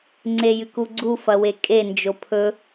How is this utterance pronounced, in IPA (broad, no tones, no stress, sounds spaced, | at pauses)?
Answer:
ŋ͡ǀ e j ɨ k u ɡ͡ǀ u f ɐ w e kʼ e n d͡ʒ o pʰ ɵ